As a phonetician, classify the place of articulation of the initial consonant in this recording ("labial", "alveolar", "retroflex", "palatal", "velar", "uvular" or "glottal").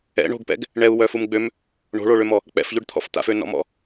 retroflex